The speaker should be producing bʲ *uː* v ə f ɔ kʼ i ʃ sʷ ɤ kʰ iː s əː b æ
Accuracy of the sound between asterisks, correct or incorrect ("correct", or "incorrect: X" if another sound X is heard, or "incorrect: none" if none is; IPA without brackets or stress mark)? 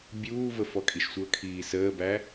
correct